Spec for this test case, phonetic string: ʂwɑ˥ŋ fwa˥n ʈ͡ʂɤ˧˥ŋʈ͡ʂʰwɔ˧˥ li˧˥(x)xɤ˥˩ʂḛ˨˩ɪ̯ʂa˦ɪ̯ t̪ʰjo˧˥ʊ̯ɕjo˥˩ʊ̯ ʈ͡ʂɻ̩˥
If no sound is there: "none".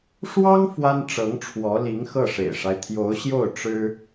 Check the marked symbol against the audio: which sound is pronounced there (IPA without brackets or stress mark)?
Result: ŋ